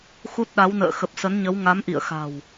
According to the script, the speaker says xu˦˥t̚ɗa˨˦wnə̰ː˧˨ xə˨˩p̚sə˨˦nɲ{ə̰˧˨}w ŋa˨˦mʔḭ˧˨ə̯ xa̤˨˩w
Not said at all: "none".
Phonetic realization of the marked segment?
ə˨˦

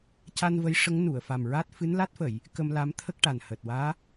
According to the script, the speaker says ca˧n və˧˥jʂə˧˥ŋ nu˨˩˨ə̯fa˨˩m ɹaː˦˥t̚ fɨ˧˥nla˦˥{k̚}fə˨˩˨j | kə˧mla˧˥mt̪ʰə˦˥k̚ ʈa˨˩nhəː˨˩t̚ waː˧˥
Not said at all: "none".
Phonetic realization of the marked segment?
t̚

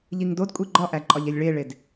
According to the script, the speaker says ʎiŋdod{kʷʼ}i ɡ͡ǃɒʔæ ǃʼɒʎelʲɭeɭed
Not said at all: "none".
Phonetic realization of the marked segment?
kʷʼ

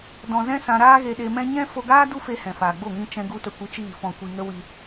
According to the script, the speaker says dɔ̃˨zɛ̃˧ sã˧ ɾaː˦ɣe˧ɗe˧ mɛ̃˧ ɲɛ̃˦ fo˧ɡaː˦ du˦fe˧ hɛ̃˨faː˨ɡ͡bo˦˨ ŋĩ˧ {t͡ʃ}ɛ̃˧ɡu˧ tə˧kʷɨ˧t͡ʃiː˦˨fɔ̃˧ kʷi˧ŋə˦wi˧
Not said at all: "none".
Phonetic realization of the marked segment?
t͡ʃ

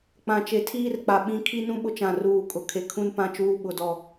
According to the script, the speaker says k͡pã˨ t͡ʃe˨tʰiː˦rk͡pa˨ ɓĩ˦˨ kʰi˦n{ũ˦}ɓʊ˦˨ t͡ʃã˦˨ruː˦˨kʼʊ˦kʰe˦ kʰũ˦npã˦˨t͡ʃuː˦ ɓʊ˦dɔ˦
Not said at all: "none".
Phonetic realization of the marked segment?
ũ˦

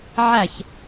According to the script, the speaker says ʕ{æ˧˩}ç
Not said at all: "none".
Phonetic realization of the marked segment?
æ˧˩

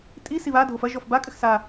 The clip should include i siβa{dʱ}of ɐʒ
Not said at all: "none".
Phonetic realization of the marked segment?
dʱ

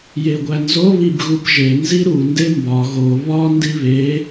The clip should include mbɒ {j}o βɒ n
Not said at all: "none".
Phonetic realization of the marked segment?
ɣ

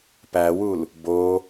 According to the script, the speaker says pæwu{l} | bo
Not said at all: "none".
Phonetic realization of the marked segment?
l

